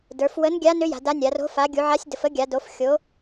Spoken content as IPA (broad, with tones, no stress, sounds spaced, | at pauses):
d ə˞˩˧ f w ə˧˥ n ɡʲ a˧˥ n ʏ˧˥ j a̤˩˧ d a˧˥ nʲ a˩˧ r o̤˧˥ f a˩˧ ɡʲ u˩˧ ʕ a˧˥ sʲ d ə˩˧ f ə˧˥ ɡʲ a˩˧ d o˩˧ f xʲ o˩˧